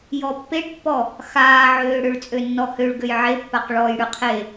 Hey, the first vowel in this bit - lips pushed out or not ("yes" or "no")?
yes